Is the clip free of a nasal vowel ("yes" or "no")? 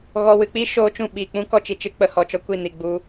no